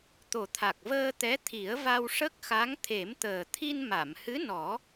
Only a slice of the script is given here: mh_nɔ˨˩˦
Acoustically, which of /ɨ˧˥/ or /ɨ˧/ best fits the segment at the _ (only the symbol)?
ɨ˧˥